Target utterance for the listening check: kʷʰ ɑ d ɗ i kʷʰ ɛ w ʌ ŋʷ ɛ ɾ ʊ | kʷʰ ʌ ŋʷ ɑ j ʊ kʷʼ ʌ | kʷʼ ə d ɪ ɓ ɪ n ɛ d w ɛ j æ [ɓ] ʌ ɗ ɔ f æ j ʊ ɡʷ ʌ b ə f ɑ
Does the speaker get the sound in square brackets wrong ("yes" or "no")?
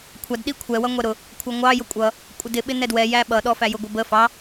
no